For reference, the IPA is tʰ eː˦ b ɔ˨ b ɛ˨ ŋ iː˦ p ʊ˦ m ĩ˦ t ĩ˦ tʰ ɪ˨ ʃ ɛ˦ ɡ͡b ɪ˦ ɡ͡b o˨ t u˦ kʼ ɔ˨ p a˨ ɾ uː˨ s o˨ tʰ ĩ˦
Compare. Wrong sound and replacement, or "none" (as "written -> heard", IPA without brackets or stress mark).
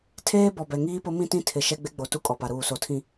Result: none